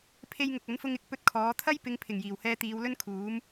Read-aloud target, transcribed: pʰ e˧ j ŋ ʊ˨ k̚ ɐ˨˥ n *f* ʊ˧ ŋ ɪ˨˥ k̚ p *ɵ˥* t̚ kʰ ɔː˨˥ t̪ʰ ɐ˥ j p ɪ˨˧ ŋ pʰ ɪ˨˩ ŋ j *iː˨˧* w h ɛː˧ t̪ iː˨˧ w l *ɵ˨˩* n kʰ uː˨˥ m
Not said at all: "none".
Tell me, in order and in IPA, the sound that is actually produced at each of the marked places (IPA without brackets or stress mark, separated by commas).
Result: f, ɵ˥, iː˨˩, ɵ˥